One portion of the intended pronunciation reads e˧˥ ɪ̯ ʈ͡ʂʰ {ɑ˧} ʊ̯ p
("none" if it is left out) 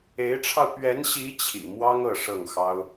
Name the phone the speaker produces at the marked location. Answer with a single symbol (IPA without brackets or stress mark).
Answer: ɑ˧